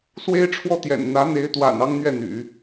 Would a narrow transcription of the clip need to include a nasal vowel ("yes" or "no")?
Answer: no